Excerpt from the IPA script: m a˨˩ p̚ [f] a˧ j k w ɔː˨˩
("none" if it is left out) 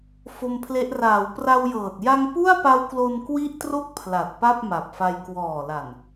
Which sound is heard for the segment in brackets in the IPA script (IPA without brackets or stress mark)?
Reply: f